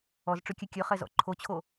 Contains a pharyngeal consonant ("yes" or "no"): no